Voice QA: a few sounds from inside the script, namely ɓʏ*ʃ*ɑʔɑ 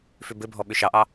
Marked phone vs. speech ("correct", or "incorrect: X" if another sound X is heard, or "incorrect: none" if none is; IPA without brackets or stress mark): correct